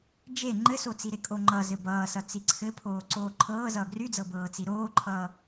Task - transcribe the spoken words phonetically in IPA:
d͡ʒe ŋ͡ǃɘsot͡si ɾekʼoŋ͡ǃʌzɘ bʌːsʌ t͡siǀʰɘ pʰoːǀoːǃʰɤː zʌːɡryd͡zɤ bɤːt͡siɾoːǃʰʌː

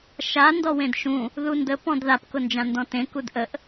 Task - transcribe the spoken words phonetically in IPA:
ʃa ndɔwẽdʃũ | ðundə pɔ̃dðap kʊnd͡ʒãndɔ̃tẽ kudʔəʔ

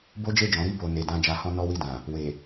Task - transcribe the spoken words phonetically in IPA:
bo˦d͡ʒe˦˨d͡ʒɔ̃˨˦ ɾi˦˨bo˨ ne˨dã˧ d͡ʒa˧hɔ̃˦ nɔ˦wi˦˨dã˨ | we˨

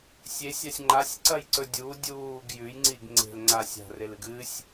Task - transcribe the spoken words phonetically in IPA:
sʲesʲasʲ ŋ͡ǃasʲǀɐjǀɵ dʲu dʲuːɡ jʉjŋ͡ǀiɡ ŋ͡ǀe̤lŋ͡ǀa sʲa̤relɨɡ ɨsʲ

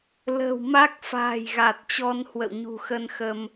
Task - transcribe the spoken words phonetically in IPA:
lə̤ː˨˩w ma˦˥k̚ fa̤ː˨˩j ɣa˨˩t̚t͡ɕɔ˧n hwə̰˧˨wɲṳ˨˩xə˧n xə˧m

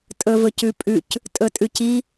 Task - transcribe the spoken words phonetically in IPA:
tʼɵvɵcʉpʼʉc | tʼɵtʼʉci

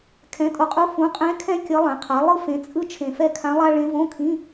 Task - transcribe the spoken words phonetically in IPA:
kʰɛ̃˩˥tʼo˨qʼu˧˥ fũ˩˥qʼɛ̃˧˥ kʰɛ̃˥ kʲʌ˧˥lˠɛ̃˩˥qʰa˩˥ lˠɯ˥fẽ˩˥t͡sʼɯ˥ t͡ʃʰẽ˨fɛ˥˨kʰã˧˥lˠa˥ ɭẽ˧˥võ˧˥˧kʰĩ˧˥˧

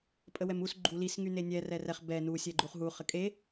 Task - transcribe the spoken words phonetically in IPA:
pʼəwɛmus ɡ͡ǃulis ŋynenʲɛ rɛrɛχ bɛ nu sʲɛɡ͡ǃuχɦu χəkʼe

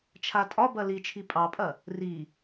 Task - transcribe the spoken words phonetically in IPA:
t͡ʃʰatʼɒbɐ lit͡ʃʰi pʼɑpʼɐ | ri

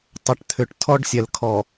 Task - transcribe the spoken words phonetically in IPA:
tˤə˨ʈt̪ʰʏ˨ʈ tʰɔ˦ɖsʲɛ˨lkʰɔ˨

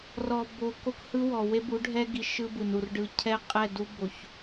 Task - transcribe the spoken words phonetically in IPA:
rɔ˨bo˨ ko˦khɯ˦wɔ˨ we˦bu˨˦ɖʱɛ˦ɡi˨ ʃɯ˦bɯ˨nu˨r ɖɯ˨ cʰɛ˦ qʼɛ˦˨du˦bo˨ç

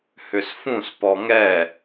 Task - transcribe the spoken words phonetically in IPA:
hʏsfũs pɔŋɛ

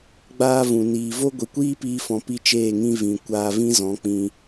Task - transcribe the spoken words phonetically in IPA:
ɡ͡baː˧ vũ˨ niː˨vo˦ ɡʷi˨kʷiː˦piː˧fɔ̃˨ pi˦t͡ʃeː˦˨ŋĩ˦ vĩ˨ kʷaː˧vĩ˦zɔ̃˨˦k͡pĩ˧

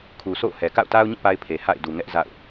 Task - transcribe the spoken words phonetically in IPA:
kʰu˨sʰo̰˦˨ʊ̯hɛ˨ ka̰˦˨ʊ̯ta˦ʊ̯ɲĩ˦˨ pa˦ɪ̯pʰe˨ha̰˦˨ɪ̯ du˨ ŋɛ˦ʔ za̰˦˨ʊ̯

